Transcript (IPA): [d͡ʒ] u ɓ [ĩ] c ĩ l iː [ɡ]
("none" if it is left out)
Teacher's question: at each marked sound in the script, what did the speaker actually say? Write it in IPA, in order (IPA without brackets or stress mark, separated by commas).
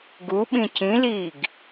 ɡ, ĩ, ɡ